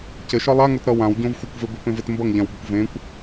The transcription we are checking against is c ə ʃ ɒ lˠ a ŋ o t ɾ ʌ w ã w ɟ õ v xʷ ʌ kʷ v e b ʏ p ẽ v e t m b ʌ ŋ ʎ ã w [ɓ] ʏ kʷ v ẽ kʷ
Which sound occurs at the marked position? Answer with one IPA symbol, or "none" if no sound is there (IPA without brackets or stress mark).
b